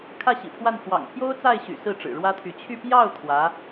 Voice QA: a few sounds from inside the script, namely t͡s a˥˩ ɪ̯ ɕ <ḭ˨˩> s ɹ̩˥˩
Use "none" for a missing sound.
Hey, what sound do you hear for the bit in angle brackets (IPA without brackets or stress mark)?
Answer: y̰˨˩